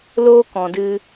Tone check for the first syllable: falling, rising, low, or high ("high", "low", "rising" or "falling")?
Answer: high